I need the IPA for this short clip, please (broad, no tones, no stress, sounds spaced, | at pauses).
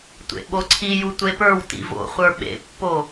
tʷ ḛ ɓ o ǀʰ i j u tʷ e p ə˞ w t ḭ v o̰ χʷ ə˞ ɓ ḛ pː o